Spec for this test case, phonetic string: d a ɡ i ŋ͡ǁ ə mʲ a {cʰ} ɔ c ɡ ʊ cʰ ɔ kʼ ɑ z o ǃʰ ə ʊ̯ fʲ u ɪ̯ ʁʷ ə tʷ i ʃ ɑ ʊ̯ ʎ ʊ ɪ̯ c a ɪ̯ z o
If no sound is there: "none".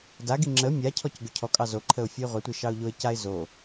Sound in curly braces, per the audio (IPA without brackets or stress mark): cʰ